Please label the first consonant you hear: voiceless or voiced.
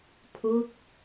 voiceless